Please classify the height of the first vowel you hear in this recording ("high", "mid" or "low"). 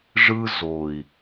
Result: high